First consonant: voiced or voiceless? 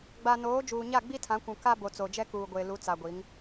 voiced